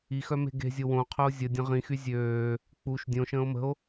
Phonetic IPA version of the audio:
i x œ m e̤ ɡ e̤ zʲ o w õ qʰ œ o̯ zʲ ə dʲ ə̃ ʁ ĩ x y zʲ øː | k͡p u ʃ dʲ õ ʃ ə̃ː o̯ m ə̤ o̯

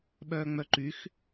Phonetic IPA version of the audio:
ɓ œː ŋ͡m œ ǃ y x

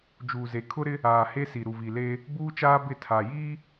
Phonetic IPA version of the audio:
d͡ʒ uː˨ z e˨ kʰ ʊ˦ ɾ ɪ˦ | aː˨ h e˦ s i˨ ɾ u˨ v i˨ l eː˦ | b uː˦ t͡ʃ aː˦ b ɪ˦˨ tʰ a˨ j iː˦

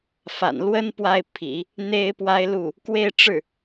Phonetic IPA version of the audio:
f a̰˨˩ n l w ə˥ n p w a˥˩ ɪ̯ pʰ ḭ˨˩˦ | n̪ e˥ ɪ̯ p w a˥ ɪ̯ l u˥˩ | k w e˥˧ ɪ̯ ʈ͡ʂ ɻ̩˥˩

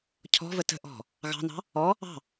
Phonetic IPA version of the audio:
cʰ ɔ̤ v ə t ə̤ ʔ ɔ̤ | ɣ ɑ̤ n ɑ̤ | ɔ | ɑ̤

